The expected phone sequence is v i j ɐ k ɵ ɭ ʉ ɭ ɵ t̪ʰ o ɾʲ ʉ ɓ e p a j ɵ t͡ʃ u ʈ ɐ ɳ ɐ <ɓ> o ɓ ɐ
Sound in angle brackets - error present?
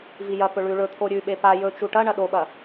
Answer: yes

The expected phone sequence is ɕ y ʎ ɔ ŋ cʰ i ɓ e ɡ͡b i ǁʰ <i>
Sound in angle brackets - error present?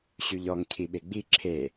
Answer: yes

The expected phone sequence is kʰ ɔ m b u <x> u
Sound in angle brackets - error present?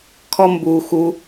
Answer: no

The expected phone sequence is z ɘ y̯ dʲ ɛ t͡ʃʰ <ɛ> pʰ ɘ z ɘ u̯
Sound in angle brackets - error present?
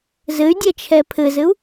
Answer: no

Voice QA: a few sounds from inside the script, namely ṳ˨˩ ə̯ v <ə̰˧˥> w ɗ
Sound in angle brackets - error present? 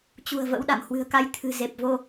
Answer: no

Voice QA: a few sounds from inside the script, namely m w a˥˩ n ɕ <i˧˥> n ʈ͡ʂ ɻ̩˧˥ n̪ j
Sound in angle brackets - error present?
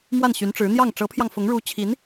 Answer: yes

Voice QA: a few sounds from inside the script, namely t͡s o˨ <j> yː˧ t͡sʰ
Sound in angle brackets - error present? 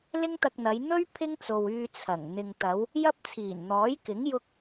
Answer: yes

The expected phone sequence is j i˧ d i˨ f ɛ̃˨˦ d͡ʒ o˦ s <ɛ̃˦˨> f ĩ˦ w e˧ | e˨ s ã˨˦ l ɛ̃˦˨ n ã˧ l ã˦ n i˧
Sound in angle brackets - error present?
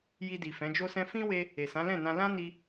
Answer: yes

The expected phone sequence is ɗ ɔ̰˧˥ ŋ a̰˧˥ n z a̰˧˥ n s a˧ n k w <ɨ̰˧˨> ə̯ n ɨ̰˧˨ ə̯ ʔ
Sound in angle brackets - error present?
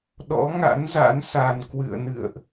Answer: no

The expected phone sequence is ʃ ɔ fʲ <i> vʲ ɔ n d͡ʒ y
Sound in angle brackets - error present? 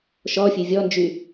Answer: yes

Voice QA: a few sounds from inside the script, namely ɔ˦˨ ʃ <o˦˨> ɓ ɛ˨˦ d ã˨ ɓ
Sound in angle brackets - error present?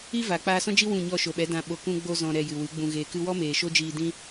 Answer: yes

